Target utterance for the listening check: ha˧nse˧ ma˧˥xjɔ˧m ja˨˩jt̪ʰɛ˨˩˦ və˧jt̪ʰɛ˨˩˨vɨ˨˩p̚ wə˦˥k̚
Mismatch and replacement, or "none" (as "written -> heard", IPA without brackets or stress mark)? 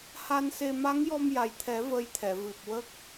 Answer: x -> ŋ